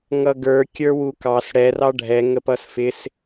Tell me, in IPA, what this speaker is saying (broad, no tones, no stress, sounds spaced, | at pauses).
ŋ ʌ ɡ ə˞ kʲ ə˞ w u k ɑ s ɽ ɛ r ɑ ɖʱ ɛ ŋ ə p ʌ s f ɪ s